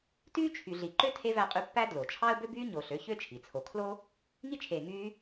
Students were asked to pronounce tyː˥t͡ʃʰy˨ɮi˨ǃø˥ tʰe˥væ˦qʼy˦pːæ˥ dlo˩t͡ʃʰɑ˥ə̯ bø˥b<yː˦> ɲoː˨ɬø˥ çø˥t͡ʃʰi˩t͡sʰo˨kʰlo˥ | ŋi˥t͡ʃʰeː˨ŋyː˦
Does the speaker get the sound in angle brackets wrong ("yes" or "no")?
yes